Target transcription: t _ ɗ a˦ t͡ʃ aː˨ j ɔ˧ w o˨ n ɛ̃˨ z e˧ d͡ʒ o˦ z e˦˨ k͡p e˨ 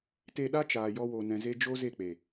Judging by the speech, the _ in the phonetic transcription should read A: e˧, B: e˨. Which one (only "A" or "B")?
A